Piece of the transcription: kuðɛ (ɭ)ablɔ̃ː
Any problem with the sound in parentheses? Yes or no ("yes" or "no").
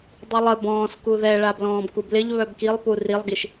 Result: no